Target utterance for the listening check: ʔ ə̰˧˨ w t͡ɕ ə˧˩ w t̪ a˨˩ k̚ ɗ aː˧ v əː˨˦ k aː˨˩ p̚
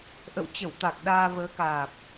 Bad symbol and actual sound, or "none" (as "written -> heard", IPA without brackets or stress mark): none